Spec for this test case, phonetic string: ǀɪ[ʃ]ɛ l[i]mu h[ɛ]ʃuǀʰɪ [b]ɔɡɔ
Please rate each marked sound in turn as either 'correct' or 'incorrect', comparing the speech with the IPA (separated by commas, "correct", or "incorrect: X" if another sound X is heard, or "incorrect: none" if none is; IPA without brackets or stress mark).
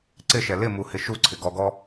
correct, incorrect: ɪ, incorrect: ɪ, incorrect: ɡ